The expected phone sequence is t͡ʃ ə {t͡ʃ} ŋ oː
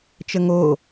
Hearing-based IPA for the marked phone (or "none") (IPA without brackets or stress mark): none